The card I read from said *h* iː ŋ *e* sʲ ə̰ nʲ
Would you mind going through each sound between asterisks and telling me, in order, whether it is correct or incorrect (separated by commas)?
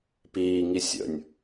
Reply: incorrect, incorrect